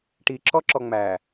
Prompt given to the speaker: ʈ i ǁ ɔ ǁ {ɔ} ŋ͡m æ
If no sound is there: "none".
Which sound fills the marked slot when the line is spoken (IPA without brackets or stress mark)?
ɔ